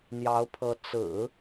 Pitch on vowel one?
rising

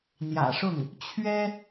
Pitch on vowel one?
low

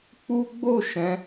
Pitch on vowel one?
high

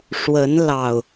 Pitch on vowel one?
rising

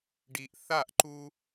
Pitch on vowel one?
low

